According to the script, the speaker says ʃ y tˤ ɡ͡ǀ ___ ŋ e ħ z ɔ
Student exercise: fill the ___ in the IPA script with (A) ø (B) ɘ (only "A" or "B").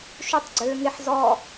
A